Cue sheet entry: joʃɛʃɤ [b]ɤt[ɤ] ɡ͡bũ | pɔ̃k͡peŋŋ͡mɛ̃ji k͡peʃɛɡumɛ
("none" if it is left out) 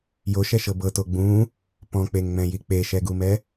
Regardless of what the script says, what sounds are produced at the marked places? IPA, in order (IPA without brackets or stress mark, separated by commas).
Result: b, o